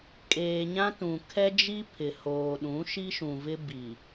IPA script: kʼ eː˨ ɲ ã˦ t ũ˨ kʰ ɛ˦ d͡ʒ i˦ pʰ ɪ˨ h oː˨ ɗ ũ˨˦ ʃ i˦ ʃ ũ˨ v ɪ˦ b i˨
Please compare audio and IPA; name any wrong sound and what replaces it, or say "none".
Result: none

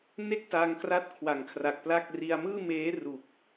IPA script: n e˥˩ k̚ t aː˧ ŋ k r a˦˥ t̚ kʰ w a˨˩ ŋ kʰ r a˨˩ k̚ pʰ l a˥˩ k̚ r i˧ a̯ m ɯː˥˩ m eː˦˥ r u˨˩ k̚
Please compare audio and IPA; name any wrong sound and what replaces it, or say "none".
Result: pʰ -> p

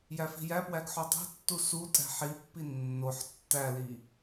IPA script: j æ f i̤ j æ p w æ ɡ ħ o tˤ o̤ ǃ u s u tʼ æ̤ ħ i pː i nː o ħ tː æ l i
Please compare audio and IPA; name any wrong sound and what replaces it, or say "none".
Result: ǃ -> tː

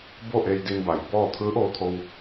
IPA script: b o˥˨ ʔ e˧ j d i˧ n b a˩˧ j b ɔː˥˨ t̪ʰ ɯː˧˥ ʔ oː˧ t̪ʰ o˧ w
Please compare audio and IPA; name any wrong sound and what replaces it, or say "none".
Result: none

